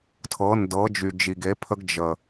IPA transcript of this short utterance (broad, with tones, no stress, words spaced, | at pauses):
tʰɤ˨˦ndɤ˨˦ d͡ʒy˨d͡ʒi˨ɡe˨˦pʰə˦ɡ d͡ʒə˨